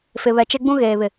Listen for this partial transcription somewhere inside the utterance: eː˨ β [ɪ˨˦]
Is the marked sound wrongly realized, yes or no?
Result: yes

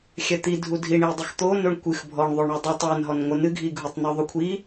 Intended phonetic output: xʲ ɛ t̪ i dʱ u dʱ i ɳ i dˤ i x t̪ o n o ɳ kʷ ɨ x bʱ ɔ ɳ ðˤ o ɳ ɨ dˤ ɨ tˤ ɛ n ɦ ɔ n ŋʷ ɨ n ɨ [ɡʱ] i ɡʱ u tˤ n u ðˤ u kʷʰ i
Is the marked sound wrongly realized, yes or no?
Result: no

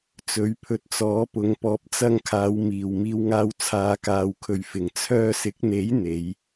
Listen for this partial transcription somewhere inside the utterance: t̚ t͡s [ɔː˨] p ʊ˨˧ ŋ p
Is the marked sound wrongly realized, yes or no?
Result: yes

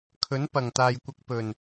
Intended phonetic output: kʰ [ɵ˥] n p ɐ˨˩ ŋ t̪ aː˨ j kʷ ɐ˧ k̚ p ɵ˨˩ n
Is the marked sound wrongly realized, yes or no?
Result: yes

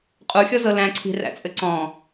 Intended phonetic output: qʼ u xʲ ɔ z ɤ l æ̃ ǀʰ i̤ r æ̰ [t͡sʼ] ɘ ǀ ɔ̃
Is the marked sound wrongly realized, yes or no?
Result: no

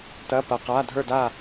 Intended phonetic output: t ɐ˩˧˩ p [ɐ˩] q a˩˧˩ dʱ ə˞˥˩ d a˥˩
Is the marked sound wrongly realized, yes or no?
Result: no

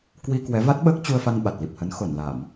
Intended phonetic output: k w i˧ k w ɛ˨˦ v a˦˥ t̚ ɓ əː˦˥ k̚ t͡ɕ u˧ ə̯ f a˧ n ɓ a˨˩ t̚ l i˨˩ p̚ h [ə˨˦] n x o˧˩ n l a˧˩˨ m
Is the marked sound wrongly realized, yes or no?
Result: no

